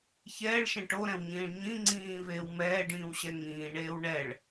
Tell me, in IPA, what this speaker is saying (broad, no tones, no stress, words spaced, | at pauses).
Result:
çɛːɭʃɛ̃ ʈoɾɛ̃wɲĩːɭ ɲĩ ŋ͡ǀĩːveːw mɛːɖĩːwɕɛ ŋĩːɳeːw ɳɛɭ